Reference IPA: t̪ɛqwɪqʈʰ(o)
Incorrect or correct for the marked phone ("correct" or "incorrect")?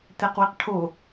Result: correct